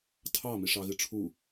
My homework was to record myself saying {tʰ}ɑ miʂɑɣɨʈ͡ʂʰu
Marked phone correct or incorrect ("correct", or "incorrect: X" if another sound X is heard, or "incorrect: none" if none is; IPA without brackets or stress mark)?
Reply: correct